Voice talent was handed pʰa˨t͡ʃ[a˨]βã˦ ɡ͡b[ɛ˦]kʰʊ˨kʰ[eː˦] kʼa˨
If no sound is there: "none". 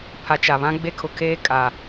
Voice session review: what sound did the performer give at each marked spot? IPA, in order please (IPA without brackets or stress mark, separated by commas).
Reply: a˨, e˦, eː˦